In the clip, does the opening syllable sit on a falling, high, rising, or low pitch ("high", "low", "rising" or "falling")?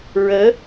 rising